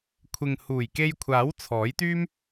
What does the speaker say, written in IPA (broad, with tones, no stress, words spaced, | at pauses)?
kʷʰɪ˨ŋ huː˨˩jke˧jkʷʰaː˨˥w t͡sʰɔː˨˥jt̪yː˥m